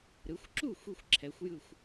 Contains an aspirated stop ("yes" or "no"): yes